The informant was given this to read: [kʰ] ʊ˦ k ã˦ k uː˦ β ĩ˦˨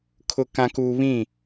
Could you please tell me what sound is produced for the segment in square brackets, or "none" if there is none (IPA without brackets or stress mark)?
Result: kʰ